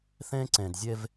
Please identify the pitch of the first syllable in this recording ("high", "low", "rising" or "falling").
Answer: high